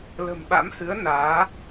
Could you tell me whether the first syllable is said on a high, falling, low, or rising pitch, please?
low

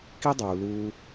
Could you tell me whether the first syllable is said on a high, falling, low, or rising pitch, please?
high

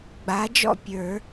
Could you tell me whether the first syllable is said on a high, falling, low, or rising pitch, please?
rising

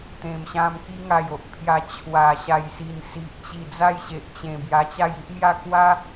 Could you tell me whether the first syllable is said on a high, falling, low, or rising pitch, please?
low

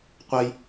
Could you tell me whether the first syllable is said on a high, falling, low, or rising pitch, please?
high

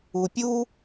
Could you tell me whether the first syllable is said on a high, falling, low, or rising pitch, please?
low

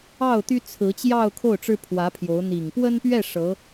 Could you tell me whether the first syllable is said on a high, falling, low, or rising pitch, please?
falling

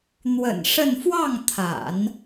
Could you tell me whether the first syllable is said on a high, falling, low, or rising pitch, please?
low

